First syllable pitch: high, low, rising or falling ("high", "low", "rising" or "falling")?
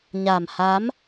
low